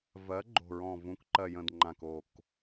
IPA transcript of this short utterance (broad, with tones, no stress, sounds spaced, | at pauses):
v ɜ˩˥ ɡ͡ǃ o̤˨˩ ɹ ɔ̃˨˩ v ũ˩˥ k ǃ ɜ˨˩ j ə̃˨˩ d ŋ͡ǃ ã˨˩ k o˨˩ k